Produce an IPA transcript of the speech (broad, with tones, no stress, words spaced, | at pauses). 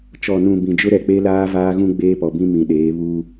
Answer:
t͡ʃɔ˨nũ˨ bĩ˨d͡ʒʊ˦ ɾɛ˨k͡pe˦laː˦ vaː˦ɣũ˦ ɡ͡beː˦pɔ˨bĩ˦ mĩ˨ɗeː˨˦ βuː˦